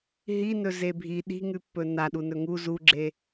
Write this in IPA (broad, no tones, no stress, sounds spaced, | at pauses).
ɦ i n ɵ z e bʱ i ɗ i̤ ŋ ʉ pː ɵ n a ɗ u n ɵ ŋ u z u ɡ͡ǁ e